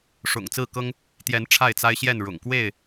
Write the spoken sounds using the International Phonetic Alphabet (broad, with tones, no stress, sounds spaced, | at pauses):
ʂ ʊ̰˨˩ ŋ t͡s ɹ̩˥˨ k ɤ˦ ŋ | t̪ j ɛ˨˦ n ʈ͡ʂʰ a˥˨ ɪ̯ t͡s a˦ ɪ̯ ɕ j ɛ˥˨ n ɻ ʊ̰˨˩ ŋ k w e˥˨ ɪ̯